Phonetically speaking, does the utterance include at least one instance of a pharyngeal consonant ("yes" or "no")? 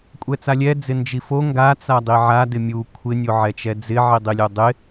yes